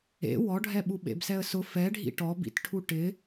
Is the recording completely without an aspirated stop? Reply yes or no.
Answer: no